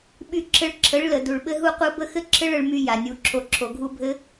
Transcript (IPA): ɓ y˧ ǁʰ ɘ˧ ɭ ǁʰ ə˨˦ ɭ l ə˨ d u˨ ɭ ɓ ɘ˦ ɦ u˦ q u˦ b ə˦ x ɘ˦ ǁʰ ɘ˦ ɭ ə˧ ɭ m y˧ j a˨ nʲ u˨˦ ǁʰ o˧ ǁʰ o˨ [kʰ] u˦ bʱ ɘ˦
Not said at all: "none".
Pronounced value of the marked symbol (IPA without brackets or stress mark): ɡʱ